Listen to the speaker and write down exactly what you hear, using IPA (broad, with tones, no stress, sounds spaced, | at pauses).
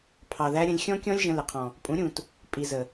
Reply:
pʰ ɑ˨ ð æ˧ ɾʲ ə̃˧ lʲ xʲ ɔ̃˦ kʲ ɔ̃˦ lʲ ʒ ə̃˧ l ɪ˨ qʰ ɔ̃˨ | pʼ ũ˨˦ ɾʲ ũ˨ t | pʼ i˨ z ə˨